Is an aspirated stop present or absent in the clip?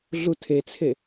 present